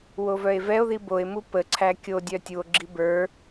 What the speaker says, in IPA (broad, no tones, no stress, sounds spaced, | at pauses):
w o v œ e̯ v ɛ o̯ ð i b o e̯ m u p ə ǀʰ æ kʲ o dʲ œ tʲ u o̯ ɡ͡ǁ i b ə˞